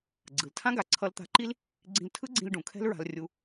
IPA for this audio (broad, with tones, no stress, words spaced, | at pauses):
ɡ͡ǀɯ˩ltʰã˥ ɡa˩ǀʰʌ˧lt̪a̤˧ǃi˥l | ɡ͡ǀĩ˧ltʰɯ˥ɡ͡ǀĩ˧l ɖũ˩kʰɛ̤˥l ɹa̤˧lrʲu˧